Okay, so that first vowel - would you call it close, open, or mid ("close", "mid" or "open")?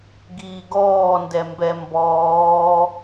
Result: close